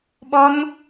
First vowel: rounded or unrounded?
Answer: rounded